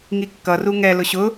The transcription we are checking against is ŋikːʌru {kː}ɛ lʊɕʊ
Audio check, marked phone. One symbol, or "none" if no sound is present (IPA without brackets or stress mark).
ŋ